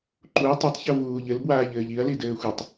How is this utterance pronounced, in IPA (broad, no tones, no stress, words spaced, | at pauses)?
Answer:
ǃuɐ̯ tˤatˤçɤ vuːʎɘlbwaːʎɘːʎ iɐ̯li dɘːxʷɤtˤ